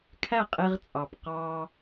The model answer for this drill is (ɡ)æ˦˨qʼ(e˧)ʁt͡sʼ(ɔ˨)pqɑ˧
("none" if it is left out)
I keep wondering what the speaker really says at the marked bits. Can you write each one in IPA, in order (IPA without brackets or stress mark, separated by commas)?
kʰ, e˧, ɑ˨